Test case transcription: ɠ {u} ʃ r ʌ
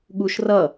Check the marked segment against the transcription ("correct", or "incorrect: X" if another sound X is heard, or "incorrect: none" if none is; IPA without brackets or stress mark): correct